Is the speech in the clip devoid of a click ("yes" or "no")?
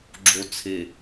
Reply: no